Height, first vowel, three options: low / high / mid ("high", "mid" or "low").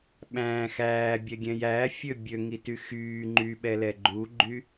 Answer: low